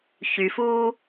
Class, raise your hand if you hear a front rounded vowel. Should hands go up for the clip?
yes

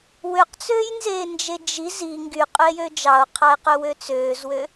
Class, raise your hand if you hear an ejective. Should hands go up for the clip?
yes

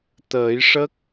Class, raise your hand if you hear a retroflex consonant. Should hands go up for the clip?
yes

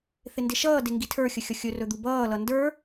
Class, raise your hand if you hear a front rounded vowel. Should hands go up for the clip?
no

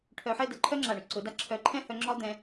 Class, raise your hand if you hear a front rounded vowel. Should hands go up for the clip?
yes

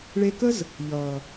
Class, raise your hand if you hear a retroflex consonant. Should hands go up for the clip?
yes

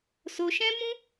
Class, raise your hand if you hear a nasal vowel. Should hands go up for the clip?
yes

